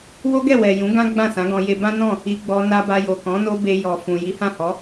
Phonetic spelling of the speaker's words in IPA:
w o˦ ɡ ɛ˦˨ w ɛ˨ j ũ˨˦ ɡ ã˦ ɡ͡b ã˦˨ s ã˨˦ ɡ ɔ̃˧ j e˧ b ã˦ n ɔ̃˦˨ | i˧ ɡ͡b ɔ˧ n a˧ b a˧ j o˨ k ɔ̃˨˦ n o˦ b e˧ j ɔ˨ f ũ˨ j i˨˦ h ã˦˨ h ɔ˨˦

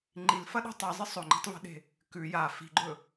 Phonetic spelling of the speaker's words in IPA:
ŋ͡ǃ i l f ɐ ɗ o̤ tˤ ɨ zˤ ɨ sˤ ɵ ŋ͡ǃ i̤ tˤ v e̤ ɗ e̤ | k ʉ j a f i̤ ɡ͡ǃ ɵ

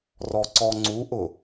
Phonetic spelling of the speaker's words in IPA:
r ɔ ǀ ɔ ŋ͡ǀ u ʔ ʊ

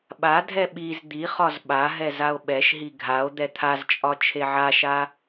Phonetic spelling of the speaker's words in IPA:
ɓ a dʱ ɛ ɓ i z d̪ i χ ɒ z ɓ a ɦ ɛ z a o̯ ɓ ɛ ʃ ɦ i ɡʱ a o̯ d̪ ɛ t̪ʰ a z t͡ʃʼ ɒ t͡ʃʰ e ʕ a ʃ a

